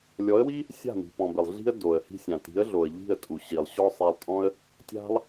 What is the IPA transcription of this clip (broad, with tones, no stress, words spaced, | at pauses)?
lʲɔ˨˦ə̯wi˦ | sʲa̤˦˨mi̤˨ pɔ̃˨bɪ˨lˠ ɮi̤˦ə̯ do˨ə̯hi̤˧sʲã˨ ti̤˨˦ə̯ɮo˨ə̯ʎi̤˦˨ə̯ tʼu˨ ɕi˨lˠ ɕɔ˦sˤe˧lˠtʼɔ̃˦ə̯ | tʲa̤˦lˠ